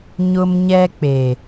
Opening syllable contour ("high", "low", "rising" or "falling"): high